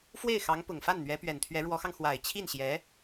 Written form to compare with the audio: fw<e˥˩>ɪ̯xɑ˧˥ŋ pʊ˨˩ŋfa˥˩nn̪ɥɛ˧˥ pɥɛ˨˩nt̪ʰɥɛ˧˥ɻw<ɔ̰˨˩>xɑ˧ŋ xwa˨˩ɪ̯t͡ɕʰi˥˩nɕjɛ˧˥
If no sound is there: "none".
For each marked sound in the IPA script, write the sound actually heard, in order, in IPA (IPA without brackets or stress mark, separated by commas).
e˥˩, ɔ˧˥